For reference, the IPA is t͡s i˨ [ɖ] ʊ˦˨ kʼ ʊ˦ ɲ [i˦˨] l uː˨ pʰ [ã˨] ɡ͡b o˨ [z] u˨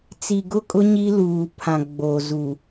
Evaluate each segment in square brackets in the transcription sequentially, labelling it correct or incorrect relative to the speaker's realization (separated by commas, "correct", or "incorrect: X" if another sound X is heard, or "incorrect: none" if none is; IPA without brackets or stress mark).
incorrect: ɡ, incorrect: i˦, correct, correct